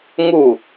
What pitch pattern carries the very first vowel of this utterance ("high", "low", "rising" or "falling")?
falling